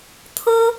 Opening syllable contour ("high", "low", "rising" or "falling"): high